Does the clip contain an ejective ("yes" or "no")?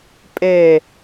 yes